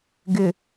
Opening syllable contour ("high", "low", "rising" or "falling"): low